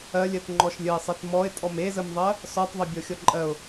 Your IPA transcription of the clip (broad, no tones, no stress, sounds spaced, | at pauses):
ɜ lʲ ɜ t ŋ͡ǃ ɔ ʃ lʲ ə ɪ̯ sˤ e t m ɔ ɪ̯ tʼ ɔ m e z ə m ðˤ ɜ | s ɔ tˤ ðˤ ə bʲ ɔ xʲ ɔ ǃʼ ɜ ʊ̯